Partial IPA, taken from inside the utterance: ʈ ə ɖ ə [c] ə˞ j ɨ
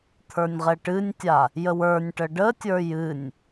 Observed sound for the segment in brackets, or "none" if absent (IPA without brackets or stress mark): tʲ